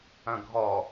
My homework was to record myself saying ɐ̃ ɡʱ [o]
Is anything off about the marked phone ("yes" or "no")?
yes